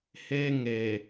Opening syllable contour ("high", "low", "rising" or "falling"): high